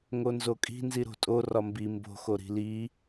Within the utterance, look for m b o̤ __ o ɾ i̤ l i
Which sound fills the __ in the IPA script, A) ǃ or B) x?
B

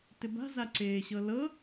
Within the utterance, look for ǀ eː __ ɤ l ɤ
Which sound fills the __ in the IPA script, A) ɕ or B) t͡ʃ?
A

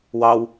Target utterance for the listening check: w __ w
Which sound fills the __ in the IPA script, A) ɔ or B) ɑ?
B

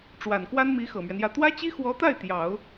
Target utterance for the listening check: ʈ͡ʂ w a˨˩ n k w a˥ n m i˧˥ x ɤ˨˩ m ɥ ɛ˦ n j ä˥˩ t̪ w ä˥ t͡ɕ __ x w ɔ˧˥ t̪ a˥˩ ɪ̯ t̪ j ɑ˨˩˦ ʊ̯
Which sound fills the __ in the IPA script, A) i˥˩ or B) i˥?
B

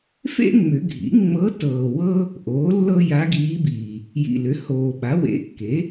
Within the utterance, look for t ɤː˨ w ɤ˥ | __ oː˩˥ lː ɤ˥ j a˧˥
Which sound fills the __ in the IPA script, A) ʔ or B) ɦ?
A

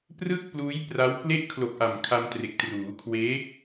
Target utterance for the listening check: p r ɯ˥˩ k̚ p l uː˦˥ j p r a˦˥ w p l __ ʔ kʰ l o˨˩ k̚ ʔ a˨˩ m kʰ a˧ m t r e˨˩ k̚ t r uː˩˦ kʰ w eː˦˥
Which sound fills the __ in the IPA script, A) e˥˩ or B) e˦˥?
B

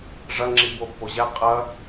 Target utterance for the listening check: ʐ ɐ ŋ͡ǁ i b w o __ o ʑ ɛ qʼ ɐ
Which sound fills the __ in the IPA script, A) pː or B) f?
A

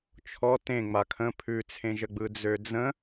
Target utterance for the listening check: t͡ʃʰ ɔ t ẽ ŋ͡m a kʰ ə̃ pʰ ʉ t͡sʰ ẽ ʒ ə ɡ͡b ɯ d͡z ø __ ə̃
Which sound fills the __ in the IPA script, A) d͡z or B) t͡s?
A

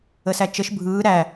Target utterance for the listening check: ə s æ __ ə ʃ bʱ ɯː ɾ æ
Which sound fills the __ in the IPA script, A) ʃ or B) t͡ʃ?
B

